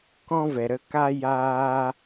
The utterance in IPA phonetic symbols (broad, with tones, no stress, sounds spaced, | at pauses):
k ɔ̃˧ v ɛ˨ ɾ ə˧ k a˦ j aː˧